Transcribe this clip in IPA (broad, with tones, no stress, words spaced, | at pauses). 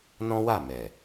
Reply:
nɔ̃˦wa˦˨mɛ˨